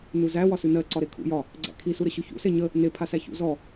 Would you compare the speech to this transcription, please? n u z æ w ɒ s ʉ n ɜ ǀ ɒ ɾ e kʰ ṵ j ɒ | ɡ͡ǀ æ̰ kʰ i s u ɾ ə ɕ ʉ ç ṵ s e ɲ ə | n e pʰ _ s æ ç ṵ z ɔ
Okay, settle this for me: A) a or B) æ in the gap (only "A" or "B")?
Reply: A